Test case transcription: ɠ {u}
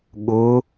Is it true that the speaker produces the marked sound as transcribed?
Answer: no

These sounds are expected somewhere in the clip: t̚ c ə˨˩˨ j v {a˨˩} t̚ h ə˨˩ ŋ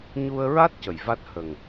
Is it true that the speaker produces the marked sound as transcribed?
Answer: no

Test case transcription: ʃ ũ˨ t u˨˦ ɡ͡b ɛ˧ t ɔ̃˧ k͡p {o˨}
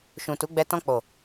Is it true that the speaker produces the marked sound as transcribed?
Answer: yes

